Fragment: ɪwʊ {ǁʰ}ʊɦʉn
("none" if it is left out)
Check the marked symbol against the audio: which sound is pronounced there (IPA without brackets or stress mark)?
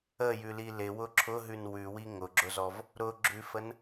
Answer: ǁʰ